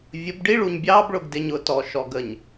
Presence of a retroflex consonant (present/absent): present